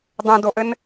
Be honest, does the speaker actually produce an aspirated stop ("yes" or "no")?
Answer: no